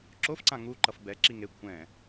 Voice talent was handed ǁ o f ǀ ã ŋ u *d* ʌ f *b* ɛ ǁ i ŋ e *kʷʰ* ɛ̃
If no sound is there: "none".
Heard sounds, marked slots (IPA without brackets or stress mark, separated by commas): ǃ, b, kʷʰ